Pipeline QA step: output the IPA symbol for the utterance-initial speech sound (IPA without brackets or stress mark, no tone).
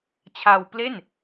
t͡ɕʰ